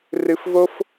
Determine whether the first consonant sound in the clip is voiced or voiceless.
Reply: voiced